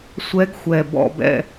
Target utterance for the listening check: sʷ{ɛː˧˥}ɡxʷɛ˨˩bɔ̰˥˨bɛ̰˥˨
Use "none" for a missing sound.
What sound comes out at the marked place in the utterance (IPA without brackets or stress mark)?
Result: ɛ˧˥